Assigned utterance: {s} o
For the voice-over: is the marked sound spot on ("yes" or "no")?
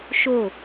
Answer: no